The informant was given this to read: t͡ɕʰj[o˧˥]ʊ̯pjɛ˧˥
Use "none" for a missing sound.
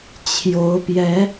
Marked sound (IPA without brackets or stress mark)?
o˧˥